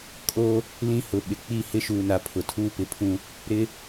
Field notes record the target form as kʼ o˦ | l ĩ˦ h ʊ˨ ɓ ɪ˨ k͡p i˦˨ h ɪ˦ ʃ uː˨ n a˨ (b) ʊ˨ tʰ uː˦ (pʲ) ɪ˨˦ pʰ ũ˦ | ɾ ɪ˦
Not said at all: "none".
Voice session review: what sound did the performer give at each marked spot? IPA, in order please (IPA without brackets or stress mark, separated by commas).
pʰ, p